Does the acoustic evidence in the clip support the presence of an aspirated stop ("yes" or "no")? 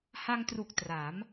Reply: no